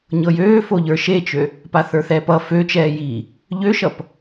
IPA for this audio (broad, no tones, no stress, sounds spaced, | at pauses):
ɲ ɤ j øː f o ʎ ə˞ ʃ e t͡ʃ ø | p a θ ə˞ θ ɛː p ʌ f ø t͡ʃ ɛː j iː | ʎ ø ʃ ʌ p